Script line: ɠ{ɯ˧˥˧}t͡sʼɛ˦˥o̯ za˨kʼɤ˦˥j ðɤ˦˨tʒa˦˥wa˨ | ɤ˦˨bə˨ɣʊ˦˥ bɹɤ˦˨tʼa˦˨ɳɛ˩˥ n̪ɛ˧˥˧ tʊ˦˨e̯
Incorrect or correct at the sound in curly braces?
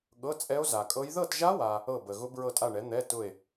incorrect: ɤ˧˥˧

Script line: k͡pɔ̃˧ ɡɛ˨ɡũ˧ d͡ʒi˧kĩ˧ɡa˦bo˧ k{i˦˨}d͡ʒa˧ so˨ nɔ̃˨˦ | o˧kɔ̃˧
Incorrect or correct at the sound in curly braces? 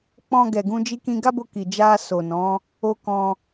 incorrect: i˨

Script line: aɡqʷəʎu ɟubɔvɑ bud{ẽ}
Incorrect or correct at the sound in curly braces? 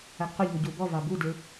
incorrect: e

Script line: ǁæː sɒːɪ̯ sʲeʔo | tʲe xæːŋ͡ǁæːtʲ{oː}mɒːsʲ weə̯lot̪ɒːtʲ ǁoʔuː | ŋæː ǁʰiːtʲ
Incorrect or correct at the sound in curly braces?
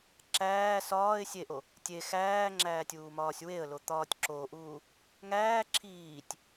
incorrect: uː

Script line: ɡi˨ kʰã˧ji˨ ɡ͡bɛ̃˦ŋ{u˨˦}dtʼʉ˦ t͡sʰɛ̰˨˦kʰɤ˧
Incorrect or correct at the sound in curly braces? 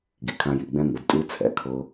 correct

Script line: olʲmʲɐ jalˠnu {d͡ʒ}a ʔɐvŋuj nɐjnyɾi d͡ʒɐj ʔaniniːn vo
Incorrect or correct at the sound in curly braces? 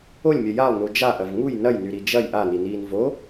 correct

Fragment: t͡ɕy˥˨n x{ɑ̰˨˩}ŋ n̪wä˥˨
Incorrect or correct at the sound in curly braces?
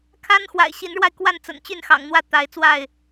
correct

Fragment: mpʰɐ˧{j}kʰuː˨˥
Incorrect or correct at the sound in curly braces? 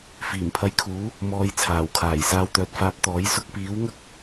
correct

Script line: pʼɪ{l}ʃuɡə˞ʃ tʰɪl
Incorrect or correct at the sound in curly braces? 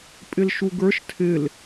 correct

